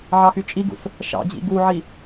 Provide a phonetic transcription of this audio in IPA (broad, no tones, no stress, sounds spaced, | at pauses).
ʕ ɑ x y t͡ʃʼ i ɡ ṵ s | ʃ ɑ̰ d͡ʑ ḭ ɡ u ʕ i